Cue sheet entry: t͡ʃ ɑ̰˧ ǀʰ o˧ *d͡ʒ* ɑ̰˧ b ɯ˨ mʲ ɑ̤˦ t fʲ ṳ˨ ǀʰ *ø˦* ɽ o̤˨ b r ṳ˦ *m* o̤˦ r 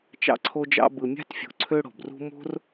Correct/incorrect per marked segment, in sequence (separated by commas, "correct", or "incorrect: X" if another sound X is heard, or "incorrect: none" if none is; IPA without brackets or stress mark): correct, correct, correct